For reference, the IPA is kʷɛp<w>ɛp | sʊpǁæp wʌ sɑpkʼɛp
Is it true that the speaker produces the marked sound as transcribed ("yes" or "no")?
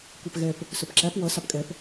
no